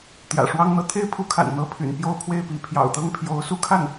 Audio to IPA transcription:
t̪ j ä̰˨˩ ʂ w ɑ˥ ŋ n̪ ɤ˥˩ t̪ʰ e˥ ɪ̯ pʰ u˧˥ kʰ a̰˨˩ n n̪ ɤ˧˥ pʰ y̰˨˩ n p j o˥˧ ʊ̯ pʰ w e˥˩ ɪ̯ p i˧˥ pʰ j ɑ̰˨˩ ʊ̯ t̪ ɤ˥˩ ŋ pʰ j o˧˥ ʊ̯ s u˥˧ kʰ a˥˩ n

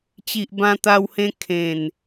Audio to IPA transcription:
t͡ɕ i˨ ʔ b ã˧ t̪ a˧ w h ẽ˧ kʰ ẽ˨˩ n

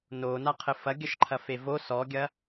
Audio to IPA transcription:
n o n a qʰ ɘ f ɐ ɡʲ ɐ ʃ ǃʰ ɐ f e v o s ɔ ɡʲ ɐ

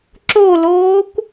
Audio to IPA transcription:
ǁ o l oː kʷ

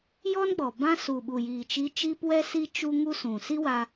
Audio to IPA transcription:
j ɔ˦ n ɡ͡b ɔ˨ b ã˧ s u˨ ɓ u˨ j iː˨ t͡ʃ i˧ t͡ʃ iː˦ p w ɛ˦ s i˦ t͡ʃ u˦ ŋ u˦ s ũ˨ s i˦ w a˧

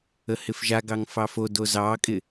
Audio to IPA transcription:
ə h ɪ f ʒ a ɡ ɑ ŋ f ɑ f o d o z ɑ kʼ ɪ

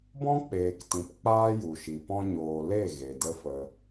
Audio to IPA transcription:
b ɔ̃˦ k͡p eː˨ k t ĩ˨ p k͡p aː˦ j u˨ ʃ i˨ p ɔ̃˧ ɲ oː˨ l e˦˨ ɣ e˨ d ə˦ f ə˧

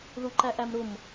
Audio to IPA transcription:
ð u ǃ æ ʔ æ m ɾ ʊ m

